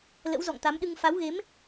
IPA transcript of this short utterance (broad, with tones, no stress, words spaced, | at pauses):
lə̰˧˥wzɔ̰˧˨ŋt̪a˨˦mɗɨ˧ŋ fa˨˦wɣe˨˦m